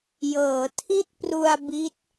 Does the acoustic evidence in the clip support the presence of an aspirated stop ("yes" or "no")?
yes